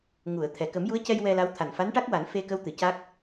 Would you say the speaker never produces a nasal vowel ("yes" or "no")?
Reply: yes